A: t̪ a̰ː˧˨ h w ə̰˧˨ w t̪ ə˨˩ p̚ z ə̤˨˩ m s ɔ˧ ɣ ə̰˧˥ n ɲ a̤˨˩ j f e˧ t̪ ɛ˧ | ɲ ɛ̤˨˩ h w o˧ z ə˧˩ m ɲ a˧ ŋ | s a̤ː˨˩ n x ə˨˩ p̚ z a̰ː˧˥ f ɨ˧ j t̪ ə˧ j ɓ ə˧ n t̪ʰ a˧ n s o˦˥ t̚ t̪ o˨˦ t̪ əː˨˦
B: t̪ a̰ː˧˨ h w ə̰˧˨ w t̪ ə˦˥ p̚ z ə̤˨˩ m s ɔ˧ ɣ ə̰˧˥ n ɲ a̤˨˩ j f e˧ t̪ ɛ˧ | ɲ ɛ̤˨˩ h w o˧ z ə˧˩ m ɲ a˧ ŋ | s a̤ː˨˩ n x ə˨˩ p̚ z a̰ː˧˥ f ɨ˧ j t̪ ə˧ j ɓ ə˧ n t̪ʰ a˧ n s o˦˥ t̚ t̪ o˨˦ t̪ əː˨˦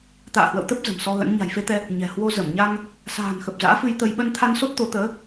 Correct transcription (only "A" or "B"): B